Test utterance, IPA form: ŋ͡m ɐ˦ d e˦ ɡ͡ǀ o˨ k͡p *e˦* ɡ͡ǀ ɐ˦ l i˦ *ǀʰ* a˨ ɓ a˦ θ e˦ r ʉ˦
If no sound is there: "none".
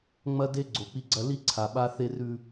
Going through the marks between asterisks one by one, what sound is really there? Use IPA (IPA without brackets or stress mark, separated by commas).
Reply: i˦, ǀʰ